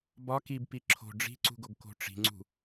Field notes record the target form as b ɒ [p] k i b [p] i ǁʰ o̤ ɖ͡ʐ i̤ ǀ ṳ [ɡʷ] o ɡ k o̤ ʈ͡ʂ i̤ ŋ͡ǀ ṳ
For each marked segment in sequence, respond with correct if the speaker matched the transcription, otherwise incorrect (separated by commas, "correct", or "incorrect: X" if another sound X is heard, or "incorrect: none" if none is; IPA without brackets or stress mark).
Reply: incorrect: none, correct, incorrect: ɡ